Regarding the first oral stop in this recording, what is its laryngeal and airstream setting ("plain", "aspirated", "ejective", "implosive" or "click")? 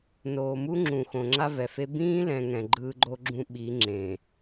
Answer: click